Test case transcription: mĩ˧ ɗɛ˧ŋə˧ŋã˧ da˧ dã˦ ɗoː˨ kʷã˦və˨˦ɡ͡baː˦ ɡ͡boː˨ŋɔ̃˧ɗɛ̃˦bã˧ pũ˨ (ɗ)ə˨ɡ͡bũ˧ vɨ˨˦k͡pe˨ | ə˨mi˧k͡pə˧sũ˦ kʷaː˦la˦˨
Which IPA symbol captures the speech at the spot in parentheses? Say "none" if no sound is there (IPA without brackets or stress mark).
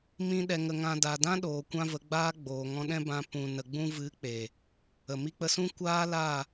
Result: n